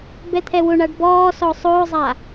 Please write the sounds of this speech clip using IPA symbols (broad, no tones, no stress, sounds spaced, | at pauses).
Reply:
b ɛ t̪ʰ ɛ w ʊ ɳ a ɖ b ɔː s ɔ sˤ ʊː zˤ a